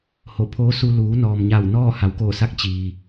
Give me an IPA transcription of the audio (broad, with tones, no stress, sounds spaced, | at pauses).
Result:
h o˧˩ pʰ oː˧˥ s u˧ l uː˩˧ n ɔː˩ m ɲ a˧˩ w n ɔː˥˨ h a˩˧ w k oː˧˩ s a˧˥ k̚ t͡ɕ iː˩